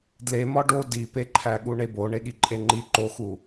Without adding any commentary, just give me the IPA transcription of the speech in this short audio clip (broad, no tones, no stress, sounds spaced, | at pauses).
d l e m ɒ ɖ o d i p e ǃʰ æ ɠ u ɳ e b o ɳ e ɠ i ǃʼ e ŋ͡ǃ i ǃ o x u